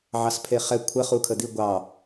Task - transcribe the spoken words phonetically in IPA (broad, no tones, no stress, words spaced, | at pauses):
ʕɑspʰeχɛ kʷʰə χukʰəd̪i ɡʷɑ